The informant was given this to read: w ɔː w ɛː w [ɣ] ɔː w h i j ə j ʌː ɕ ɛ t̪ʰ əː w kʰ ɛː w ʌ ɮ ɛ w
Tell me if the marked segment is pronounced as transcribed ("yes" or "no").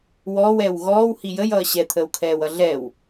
yes